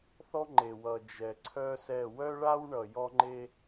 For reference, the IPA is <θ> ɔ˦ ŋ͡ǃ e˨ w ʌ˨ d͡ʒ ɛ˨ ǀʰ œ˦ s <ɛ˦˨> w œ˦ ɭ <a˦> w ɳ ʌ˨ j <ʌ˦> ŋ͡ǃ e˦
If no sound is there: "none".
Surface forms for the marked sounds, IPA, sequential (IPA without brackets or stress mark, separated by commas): θ, ɛ˦˨, a˦, ɔ˦